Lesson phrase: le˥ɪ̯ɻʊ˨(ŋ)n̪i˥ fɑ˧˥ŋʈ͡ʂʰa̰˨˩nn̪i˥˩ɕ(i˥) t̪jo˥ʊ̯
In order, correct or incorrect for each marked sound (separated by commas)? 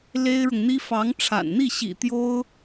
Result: correct, incorrect